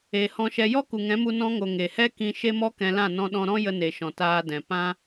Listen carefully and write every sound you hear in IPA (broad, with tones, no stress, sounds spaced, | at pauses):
e˨ h ɔ̃˧ ʃ ɛ˧ j ɔ˦ k u˨ ŋ ɛ̃˨˦ m u˧ n ɔ̃˧ ŋ o˨ ŋ e˨ h ɛ˦ k ĩ˧ ʃ e˦ m ɔ˦ k ɛ̃˧ l ã˦˨ n ɔ̃˧ ɗ ɔ̃˧ ɾ ɔ̃˦ j ə˧ n e˨ ʃ ɔ̃˨ t aː˧ d ɛ̃˨ p ã˦